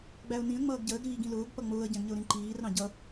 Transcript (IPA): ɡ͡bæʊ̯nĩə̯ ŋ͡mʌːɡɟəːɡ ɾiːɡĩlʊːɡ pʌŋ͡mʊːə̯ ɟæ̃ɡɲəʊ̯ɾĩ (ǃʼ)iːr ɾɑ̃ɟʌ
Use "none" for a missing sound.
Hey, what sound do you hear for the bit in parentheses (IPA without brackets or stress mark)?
ǃ